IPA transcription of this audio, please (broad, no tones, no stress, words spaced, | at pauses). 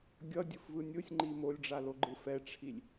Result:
ɡʲʌdʲɯfvɯ nʲɯsʲŋ͡ǃi molʲɖ͡ʐaloɡ͡ǃɯ fɛʈ͡ʂʰilʲ